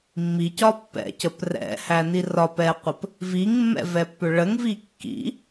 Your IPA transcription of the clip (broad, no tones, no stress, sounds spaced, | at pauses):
mː i c ɒ pː ɛ̰ c ə p r ɛ̰ h æ n i r ɒ p ɛ qʷ ə p | v i ŋ mː ɛ̰ v ɛ pː ʏ ɭ ə ŋ v i kː ḭ